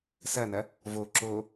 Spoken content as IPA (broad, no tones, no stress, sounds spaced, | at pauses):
s ɐ n ɐ | v o ǁ o